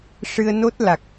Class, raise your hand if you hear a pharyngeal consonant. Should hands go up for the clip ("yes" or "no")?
no